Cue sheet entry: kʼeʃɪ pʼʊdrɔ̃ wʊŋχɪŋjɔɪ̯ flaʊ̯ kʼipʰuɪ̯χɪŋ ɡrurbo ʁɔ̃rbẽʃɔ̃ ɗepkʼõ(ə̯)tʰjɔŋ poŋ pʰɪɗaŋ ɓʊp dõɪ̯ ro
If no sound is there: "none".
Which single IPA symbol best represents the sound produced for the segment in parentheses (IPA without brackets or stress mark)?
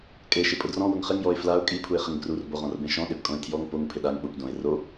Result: ɪ̯